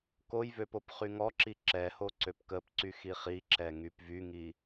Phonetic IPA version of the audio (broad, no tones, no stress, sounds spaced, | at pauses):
k o j v ø p o p χ y ŋ ɔ ǁ i ǁ ɛ h o ǀ ø p k ə p ǀ y x i χ i ǁ ɛ ŋ y p v y ŋ i